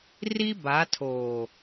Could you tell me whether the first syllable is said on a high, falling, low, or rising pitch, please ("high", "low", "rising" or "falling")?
high